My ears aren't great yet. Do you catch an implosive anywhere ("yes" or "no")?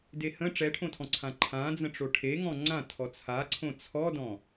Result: no